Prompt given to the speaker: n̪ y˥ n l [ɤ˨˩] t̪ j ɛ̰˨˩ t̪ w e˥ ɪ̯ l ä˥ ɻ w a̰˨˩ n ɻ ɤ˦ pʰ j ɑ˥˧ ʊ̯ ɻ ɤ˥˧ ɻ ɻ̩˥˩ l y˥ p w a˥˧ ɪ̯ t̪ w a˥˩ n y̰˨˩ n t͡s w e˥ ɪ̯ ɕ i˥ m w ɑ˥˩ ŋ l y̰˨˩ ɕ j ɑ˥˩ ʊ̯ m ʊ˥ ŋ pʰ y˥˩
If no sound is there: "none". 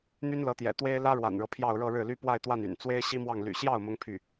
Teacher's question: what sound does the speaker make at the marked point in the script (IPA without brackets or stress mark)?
ɤ˧˥